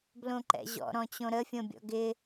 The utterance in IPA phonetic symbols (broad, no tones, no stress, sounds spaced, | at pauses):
b l õ ǃ ɛ̰ ʑ ɔ̰ ɾ ɔ̃ t͡ɕ õ ɾ ə fʲ õ bʲ ɔ̰ ɡ ɪ